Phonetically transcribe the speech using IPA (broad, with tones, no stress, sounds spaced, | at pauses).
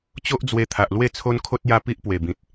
t͡ɕ o˦ ʔ d͡z w e˧ t̪ʰ a˨ ʔ l w e˥˧ t͡sʰ o˦ n kʰ o˦ t̚ j a˦ p i˦ ʔ p w e˨˩ b ĩ˨ t̚